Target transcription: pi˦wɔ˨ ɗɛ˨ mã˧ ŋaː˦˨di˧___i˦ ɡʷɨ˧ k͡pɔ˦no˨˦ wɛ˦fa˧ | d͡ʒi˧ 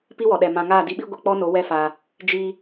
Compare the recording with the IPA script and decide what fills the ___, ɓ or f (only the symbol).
ɓ